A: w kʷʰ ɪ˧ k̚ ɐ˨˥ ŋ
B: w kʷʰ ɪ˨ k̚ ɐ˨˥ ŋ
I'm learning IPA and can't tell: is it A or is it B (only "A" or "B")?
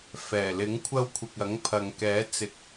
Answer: B